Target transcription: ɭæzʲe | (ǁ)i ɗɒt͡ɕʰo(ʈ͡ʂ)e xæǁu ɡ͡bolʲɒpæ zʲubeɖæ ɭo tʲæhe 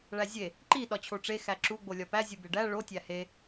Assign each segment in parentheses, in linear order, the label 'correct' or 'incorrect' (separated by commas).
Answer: incorrect, correct